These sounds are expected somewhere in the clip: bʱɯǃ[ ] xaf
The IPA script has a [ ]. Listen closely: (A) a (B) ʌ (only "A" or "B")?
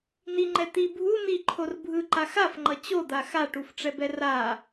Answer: A